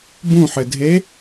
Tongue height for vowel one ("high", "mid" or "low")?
high